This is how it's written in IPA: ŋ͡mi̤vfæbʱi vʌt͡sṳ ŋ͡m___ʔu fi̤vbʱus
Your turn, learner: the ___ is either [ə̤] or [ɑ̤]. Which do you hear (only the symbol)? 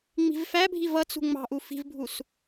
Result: ɑ̤